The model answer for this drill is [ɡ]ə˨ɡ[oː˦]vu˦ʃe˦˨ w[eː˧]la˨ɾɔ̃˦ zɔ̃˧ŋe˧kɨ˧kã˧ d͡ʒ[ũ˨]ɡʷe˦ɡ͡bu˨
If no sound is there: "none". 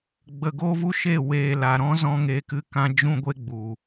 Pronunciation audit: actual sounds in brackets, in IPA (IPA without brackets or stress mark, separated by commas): ɡ͡b, oː˦, eː˨, ũ˦